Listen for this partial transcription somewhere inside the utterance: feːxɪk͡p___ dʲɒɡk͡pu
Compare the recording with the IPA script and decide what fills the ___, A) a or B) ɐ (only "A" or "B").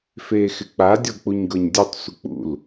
A